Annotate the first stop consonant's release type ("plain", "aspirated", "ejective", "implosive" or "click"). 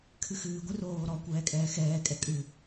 aspirated